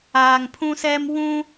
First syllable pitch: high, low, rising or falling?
low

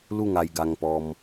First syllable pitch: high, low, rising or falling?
falling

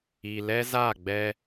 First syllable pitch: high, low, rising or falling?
low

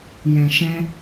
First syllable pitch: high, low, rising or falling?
low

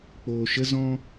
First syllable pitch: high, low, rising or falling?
low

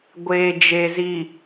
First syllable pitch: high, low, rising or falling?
low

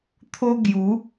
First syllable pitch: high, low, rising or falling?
high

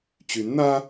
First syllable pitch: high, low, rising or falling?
rising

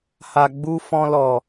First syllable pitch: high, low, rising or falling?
low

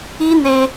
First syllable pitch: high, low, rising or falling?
high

